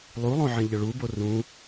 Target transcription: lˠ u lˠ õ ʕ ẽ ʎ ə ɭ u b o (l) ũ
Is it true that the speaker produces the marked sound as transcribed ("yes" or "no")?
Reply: no